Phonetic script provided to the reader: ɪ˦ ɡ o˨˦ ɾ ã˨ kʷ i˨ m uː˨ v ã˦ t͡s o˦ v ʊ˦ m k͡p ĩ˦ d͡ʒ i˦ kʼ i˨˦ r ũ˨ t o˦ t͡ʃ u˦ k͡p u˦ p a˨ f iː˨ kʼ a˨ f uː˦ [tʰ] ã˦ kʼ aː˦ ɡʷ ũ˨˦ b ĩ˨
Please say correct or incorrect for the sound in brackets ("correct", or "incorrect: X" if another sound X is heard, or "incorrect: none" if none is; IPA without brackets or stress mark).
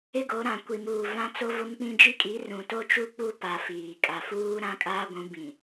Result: incorrect: ɾ